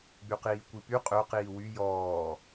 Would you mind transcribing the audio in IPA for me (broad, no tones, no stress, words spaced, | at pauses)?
ɡ͡byqiːkʷipy qʼø qiːwy jɔː